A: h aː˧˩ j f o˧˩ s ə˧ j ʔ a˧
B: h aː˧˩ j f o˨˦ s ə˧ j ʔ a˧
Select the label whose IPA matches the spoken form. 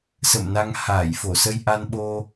A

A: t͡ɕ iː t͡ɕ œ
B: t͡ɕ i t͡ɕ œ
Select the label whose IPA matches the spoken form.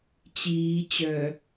A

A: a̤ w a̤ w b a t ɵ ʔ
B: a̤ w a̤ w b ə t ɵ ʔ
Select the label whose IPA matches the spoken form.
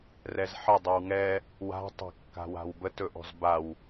B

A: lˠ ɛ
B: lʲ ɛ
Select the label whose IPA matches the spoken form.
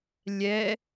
B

